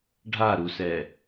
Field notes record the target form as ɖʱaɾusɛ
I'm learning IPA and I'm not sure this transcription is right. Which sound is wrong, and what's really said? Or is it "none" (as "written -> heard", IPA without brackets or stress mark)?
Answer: none